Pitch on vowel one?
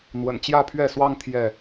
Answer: low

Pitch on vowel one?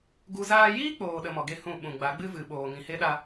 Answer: high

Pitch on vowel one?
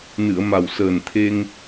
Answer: low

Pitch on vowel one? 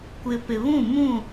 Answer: low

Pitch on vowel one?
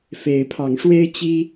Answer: rising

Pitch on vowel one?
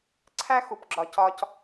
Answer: high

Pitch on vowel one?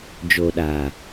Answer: low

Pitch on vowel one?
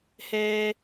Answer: high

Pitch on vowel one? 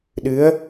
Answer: rising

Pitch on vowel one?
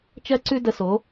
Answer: high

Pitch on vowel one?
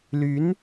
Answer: rising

